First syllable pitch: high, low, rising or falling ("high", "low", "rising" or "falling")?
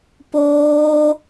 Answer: high